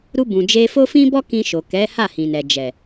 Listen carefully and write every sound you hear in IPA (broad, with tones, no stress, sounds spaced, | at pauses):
ɾ u˧ b ũ˨ d͡ʒ e˧ f o˦ f ĩ˦ b ɔ˦ k ĩ˧ ʃ o˨ k ɛ˨˦ h a˦˨ h ĩ˨ n ɛ˨ d͡ʒ ɛ˨